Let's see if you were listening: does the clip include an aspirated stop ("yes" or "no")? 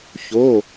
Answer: no